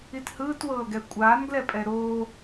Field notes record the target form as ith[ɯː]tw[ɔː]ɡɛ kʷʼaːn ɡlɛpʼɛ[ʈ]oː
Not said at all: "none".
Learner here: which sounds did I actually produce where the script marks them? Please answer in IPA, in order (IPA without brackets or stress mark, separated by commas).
ɯː, ɤː, ɾ